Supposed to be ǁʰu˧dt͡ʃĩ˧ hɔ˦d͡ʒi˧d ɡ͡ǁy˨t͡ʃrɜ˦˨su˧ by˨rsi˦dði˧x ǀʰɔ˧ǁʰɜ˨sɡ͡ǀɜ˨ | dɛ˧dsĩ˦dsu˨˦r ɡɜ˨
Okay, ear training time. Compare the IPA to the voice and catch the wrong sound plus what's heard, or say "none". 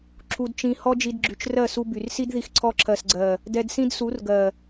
none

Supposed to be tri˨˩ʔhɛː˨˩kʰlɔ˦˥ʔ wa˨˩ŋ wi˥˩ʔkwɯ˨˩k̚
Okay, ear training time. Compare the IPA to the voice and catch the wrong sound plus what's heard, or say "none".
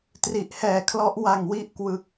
none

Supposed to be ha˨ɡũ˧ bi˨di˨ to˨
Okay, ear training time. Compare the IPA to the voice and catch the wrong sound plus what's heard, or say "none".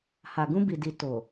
none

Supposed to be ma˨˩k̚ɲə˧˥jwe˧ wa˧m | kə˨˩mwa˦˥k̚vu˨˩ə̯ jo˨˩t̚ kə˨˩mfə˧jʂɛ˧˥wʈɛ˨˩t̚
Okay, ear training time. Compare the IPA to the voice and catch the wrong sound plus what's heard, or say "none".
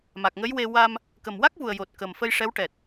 ɲ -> ŋ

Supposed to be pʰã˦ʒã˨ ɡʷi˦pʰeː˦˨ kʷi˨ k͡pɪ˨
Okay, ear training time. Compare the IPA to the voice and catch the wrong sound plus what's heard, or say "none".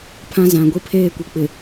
ʒ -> z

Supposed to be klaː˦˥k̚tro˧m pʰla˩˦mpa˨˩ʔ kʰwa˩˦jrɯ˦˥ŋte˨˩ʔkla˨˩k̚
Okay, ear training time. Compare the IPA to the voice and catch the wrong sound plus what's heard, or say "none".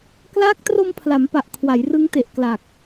none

